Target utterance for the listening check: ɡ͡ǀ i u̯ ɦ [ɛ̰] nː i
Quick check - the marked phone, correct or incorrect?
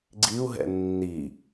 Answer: correct